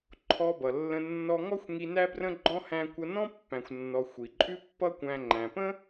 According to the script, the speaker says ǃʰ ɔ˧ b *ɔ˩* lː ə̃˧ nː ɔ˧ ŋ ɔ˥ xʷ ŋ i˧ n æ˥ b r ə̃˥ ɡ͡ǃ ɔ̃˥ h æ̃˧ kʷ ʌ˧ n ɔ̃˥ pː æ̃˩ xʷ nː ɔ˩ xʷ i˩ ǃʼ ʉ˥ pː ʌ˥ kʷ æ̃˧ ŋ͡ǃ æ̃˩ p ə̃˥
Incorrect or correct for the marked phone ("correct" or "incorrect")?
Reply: incorrect